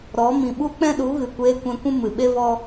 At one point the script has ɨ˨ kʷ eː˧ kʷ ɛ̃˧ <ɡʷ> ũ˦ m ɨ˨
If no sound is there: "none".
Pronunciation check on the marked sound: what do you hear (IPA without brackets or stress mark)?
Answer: kʷ